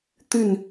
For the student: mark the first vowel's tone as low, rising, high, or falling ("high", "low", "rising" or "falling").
falling